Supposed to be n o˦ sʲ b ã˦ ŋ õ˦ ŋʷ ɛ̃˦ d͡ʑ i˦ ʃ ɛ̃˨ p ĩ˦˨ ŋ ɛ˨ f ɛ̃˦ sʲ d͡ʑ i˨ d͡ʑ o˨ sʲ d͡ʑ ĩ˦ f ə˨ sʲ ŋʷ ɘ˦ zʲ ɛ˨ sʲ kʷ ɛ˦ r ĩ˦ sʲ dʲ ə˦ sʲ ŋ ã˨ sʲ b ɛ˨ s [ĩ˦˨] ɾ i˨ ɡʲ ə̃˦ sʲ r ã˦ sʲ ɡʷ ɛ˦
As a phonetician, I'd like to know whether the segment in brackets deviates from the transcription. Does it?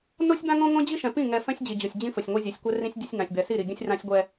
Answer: yes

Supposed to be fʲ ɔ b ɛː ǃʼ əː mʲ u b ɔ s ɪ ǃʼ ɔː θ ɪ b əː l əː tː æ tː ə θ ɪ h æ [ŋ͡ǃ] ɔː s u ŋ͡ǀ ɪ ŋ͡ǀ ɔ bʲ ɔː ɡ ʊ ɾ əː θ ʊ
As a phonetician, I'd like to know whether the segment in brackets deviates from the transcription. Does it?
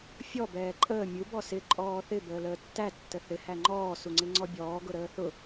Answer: no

